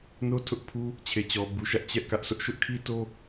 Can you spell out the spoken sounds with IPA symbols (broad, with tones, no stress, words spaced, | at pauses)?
no˦tʰʊ˦ʔpʰu˦ | t͡ɕʰe˨t͡ɕɔ˨bu˨ʃä˦ʔ t͡ɕɛ˦ʔkä˦ʔsʰʊ˦ʔ ʃʊ˦ʔkʰi˦to˦